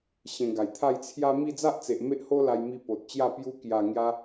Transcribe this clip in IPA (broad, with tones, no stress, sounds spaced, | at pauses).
ɕ ẽ˧ ɡ a˨˩ j t̪ʰ a˥˧ j t͡sʰ j a˦ m i˥˧ d͡z a˦ ʔ t͡s e˨ ʔ m e˦ ʔ h o˦ l a˧ j m i˧ p o˨ t̚ t͡ɕ j a˥˧ p j u˧ k j a˨˩ ŋ j a˧